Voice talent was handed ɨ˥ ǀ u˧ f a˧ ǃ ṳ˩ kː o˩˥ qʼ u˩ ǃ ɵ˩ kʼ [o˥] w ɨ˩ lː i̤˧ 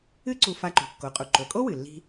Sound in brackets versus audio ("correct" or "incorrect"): correct